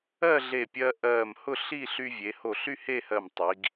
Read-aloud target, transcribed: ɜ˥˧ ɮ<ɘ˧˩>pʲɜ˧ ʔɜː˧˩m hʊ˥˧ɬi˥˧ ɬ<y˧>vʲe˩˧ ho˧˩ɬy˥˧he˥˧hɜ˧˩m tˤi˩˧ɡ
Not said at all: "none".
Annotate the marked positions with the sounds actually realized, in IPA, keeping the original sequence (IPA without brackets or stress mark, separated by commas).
e˧˩, y˧